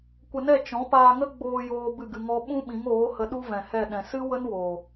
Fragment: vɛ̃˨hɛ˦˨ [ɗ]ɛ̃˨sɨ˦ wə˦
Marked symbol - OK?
yes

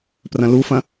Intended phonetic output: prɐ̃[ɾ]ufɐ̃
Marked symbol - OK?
no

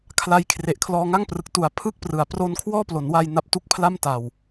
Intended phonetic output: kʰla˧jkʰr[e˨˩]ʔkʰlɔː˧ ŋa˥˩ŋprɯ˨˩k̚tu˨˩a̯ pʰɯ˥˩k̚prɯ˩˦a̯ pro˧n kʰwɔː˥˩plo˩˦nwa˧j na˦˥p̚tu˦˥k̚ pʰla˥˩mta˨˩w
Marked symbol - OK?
yes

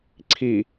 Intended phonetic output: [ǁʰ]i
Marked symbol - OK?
no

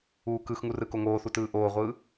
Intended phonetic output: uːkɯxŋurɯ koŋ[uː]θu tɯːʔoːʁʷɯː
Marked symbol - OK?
no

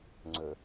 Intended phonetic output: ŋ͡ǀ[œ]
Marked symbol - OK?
no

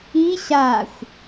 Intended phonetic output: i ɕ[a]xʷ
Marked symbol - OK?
yes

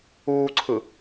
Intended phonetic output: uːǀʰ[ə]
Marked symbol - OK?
no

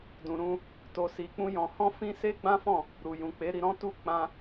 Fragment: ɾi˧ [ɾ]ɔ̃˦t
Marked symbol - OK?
yes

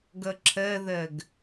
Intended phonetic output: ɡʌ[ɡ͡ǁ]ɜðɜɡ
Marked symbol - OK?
no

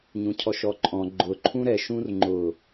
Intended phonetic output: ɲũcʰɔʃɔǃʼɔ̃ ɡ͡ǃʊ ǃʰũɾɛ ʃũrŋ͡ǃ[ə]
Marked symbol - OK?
no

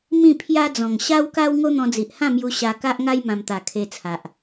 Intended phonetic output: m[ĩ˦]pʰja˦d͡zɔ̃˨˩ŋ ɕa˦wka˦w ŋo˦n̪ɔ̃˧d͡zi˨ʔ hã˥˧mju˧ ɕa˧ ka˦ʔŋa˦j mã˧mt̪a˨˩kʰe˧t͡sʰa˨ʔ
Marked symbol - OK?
no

